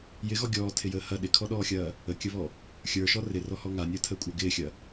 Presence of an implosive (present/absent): present